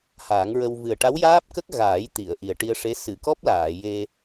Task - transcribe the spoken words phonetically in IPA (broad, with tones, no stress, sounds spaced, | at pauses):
h aː˨˩˦ ŋ ɹ ə˧ w v ɨ˨˩ ə̯ ʈ a˧˥ w j aː˦˥ p̚ k ə˦˥ k̚ ɣ aː˨˩˦ j t̪ i˨˩˨ ə̯ ʔ i˨˩ ə̯ ʈ i˧ ə̯ ʂ e˧˥ s ɨ˨˩˨ k ɔ˦˥ p̚ l aː˨˩˨ j e˧